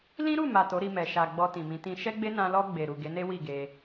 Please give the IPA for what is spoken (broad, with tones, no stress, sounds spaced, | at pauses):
l ĩ˦ ɾ u˦˨ m a˨ t o˨˦ ɾ i˧ m ɛ˨ ʃ a˨ ɡ͡b ɔ˧ t ĩ˨ m ĩ˨˦ t ĩ˧ ʃ ɛ˦ ɡ͡b e˦ n ã˧ l ɔ˧ ɡ͡b e˨ ɾ u˨ ɡ e˨˦ n e˦ w i˦˨ ɡ e˧